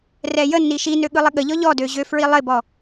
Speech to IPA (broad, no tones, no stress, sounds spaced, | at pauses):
r ɛ j ə nː i ʃ i n ø ɠ ɯ lˠ ɪ ɠ ə ʎ ɔ ʎ ɔ d ø ʑ ø f ɹ i lˠ ɪ b ɔ